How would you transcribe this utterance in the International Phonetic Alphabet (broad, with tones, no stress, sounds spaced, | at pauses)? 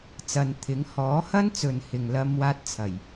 t͡s ɐ˨ n t̪ʰ ɪ˨˥ ŋ h ɔː˨˥ h ɐ˥ n t͡s ɵ˨ n h ɪ˨ ŋ l ɐ˥ m w aː˥ t̚ t͡sʰ ɐ˨˩ j